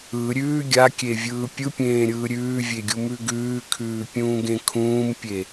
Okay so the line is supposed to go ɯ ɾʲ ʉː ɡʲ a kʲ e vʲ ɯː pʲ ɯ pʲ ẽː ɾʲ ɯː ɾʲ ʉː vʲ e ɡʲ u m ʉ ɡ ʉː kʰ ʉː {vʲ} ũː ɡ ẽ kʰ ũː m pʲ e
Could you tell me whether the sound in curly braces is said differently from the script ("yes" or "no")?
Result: yes